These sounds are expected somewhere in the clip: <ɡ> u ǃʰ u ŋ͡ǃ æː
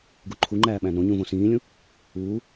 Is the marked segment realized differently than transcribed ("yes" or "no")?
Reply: no